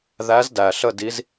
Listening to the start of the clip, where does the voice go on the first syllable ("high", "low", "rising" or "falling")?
rising